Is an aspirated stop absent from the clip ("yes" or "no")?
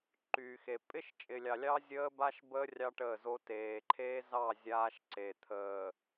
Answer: no